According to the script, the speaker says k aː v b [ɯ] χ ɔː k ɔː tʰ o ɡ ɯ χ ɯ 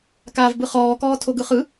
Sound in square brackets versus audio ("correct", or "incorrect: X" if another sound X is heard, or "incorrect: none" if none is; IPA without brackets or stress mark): correct